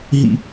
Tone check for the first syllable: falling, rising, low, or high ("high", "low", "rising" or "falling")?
high